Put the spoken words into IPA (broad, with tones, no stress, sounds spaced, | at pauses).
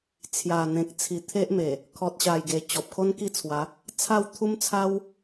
t͡sʰ j a˨˩ n̪ ẽ˨ k̚ t͡sʰ i˨˩ t̪ʰ e˦ ʔ m e˨˩ | kʰ ɔ˨ t̚ ɕ a˨˩ j ɡ e˨˩ t͡ɕ ɔ˨ p̚ kʰ o˦ n k i˥˧ t͡sʰ w a˨˦ | t͡sʰ a˥˧ w t̪ʰ u˦ m t͡sʰ a˦ w